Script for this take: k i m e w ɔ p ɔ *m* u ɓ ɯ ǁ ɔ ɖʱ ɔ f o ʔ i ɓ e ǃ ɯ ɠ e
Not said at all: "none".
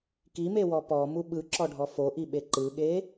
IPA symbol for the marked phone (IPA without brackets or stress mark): m